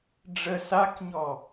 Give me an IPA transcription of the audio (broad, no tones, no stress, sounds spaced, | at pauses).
ɖ͡ʐ ə s a k ɲ ɔ